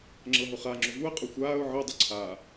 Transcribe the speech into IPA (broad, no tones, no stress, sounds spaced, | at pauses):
ŋ͡ǁ ɤ ɦ ʊ χ a ŋ͡ǁ ʊ v u ə̯ qʼ ʊ xʷ aː ʊ̯ ʕ ɛ dˤ ʊ ǀʰ a